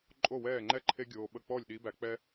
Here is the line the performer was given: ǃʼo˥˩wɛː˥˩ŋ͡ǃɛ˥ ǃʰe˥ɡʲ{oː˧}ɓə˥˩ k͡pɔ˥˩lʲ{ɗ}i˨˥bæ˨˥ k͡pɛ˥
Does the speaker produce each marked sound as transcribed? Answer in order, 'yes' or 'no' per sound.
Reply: yes, yes

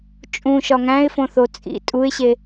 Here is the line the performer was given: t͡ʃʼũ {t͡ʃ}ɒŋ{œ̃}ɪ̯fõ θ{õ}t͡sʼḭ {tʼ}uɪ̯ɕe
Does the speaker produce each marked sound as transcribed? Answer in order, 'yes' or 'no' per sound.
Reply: no, no, no, yes

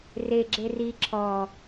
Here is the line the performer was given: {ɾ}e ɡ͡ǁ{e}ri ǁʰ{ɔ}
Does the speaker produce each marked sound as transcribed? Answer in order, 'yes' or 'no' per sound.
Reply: no, yes, yes

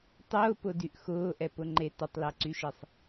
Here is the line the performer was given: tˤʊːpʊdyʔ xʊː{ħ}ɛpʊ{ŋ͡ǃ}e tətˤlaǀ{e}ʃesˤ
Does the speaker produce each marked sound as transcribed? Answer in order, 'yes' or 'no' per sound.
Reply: no, yes, no

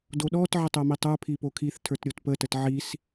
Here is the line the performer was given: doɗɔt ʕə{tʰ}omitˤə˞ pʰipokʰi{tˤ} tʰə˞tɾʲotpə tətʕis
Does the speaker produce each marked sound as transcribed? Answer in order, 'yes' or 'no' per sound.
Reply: no, no

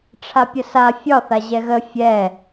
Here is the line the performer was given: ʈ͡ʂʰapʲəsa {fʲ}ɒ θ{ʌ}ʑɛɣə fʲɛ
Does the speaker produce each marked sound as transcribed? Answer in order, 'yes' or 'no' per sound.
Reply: yes, no

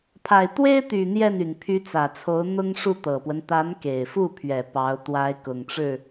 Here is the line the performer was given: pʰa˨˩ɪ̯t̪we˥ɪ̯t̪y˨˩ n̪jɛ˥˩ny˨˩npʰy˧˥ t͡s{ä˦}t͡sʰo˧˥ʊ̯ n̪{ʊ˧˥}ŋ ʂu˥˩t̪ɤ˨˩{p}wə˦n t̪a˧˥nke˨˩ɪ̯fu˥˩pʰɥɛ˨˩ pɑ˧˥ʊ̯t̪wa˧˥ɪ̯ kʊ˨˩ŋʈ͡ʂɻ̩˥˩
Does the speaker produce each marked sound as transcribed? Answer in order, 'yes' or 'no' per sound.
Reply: no, no, yes

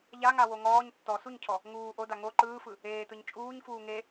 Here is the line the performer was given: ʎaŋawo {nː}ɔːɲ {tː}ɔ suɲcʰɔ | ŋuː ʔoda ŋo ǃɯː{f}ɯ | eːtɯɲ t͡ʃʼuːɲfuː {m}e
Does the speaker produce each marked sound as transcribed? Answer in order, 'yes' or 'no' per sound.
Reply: no, yes, yes, no

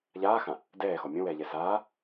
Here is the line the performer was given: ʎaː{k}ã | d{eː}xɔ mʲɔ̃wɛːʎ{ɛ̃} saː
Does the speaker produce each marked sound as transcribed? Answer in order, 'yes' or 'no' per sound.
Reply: no, no, no

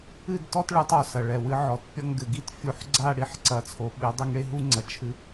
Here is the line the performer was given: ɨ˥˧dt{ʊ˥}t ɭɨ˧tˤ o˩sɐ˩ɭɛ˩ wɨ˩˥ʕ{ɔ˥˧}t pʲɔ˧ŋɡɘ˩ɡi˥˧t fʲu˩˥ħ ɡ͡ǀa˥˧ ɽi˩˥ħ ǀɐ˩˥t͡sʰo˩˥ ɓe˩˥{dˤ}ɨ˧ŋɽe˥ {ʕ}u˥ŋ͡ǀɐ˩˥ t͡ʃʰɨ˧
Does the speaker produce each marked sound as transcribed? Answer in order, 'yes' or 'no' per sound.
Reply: no, no, yes, no

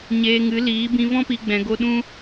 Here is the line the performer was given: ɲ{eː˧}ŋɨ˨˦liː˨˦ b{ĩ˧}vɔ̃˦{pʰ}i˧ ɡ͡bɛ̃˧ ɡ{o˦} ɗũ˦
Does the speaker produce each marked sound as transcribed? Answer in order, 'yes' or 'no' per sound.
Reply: yes, yes, no, yes

